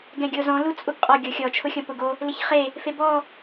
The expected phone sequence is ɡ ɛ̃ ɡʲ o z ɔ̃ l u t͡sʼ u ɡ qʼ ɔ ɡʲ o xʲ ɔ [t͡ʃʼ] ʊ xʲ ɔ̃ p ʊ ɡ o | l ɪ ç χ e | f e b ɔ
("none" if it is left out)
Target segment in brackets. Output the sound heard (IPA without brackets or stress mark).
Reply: t͡ʃʰ